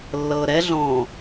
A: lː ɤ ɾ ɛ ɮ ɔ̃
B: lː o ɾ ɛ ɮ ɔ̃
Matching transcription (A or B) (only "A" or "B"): A